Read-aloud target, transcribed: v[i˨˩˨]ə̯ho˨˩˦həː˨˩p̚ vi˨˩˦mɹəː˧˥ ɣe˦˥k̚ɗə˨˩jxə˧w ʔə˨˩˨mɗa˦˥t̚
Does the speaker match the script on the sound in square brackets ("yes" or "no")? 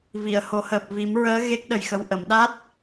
yes